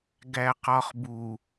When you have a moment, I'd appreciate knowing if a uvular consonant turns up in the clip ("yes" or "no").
yes